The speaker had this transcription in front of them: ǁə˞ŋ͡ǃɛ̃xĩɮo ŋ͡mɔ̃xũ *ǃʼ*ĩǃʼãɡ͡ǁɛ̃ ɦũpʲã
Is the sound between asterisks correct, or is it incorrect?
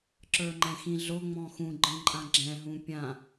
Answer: incorrect